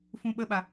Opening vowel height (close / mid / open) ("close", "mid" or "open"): close